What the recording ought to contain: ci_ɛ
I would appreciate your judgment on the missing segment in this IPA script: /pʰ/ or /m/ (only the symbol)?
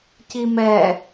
m